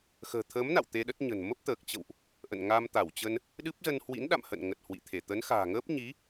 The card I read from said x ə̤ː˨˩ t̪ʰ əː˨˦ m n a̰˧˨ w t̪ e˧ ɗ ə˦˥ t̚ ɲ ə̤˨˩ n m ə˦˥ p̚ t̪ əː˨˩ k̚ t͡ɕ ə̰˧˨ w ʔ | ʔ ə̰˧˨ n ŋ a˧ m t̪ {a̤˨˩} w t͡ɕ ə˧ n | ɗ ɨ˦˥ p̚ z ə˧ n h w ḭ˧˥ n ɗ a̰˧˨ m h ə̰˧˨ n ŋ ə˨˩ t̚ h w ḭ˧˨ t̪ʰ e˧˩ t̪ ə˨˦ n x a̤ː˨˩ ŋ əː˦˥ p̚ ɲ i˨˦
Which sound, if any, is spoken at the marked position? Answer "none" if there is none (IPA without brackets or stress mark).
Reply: a˧˩